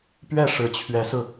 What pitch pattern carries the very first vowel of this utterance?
falling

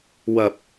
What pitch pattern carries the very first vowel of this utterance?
low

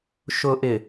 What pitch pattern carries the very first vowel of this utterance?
low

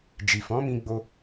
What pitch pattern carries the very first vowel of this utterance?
low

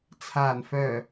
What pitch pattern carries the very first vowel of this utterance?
low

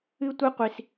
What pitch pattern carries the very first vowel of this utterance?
high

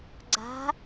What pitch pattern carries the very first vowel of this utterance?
rising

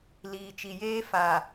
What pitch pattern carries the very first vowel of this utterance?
low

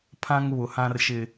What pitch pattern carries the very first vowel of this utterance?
high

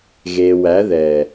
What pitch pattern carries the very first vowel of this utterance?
low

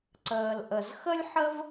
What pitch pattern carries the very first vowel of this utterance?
low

